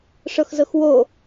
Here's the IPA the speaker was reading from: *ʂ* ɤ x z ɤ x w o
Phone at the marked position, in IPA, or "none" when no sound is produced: ʂ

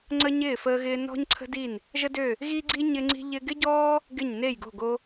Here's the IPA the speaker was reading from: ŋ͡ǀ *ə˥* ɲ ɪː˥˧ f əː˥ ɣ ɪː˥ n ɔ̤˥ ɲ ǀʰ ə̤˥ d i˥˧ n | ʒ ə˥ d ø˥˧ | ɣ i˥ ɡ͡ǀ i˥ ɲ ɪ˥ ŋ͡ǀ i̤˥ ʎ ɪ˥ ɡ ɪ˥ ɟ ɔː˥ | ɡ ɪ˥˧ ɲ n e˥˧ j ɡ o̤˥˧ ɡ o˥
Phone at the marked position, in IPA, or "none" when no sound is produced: ə˥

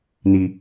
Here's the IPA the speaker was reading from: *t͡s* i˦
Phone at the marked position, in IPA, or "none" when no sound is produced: n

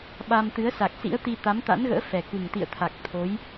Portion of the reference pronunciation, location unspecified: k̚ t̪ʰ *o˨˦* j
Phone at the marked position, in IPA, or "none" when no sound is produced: o˨˦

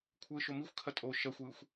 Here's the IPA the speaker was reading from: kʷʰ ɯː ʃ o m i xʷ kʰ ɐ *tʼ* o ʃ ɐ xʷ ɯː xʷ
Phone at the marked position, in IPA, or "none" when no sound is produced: tʼ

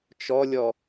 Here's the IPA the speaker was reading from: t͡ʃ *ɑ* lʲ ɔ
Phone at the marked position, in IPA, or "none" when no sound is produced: ɔ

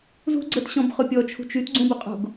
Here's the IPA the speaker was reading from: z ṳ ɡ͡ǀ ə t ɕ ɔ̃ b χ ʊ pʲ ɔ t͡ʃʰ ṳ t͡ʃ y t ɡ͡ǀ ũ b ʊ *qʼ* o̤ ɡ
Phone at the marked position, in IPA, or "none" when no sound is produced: qʼ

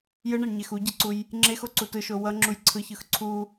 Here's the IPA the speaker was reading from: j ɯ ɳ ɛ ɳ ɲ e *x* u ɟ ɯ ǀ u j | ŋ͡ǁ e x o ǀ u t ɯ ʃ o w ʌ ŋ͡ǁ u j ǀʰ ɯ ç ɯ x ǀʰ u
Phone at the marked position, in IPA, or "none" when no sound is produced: x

